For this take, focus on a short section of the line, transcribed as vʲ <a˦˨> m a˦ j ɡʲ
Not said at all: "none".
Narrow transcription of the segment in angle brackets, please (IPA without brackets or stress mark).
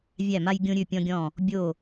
æ˦˨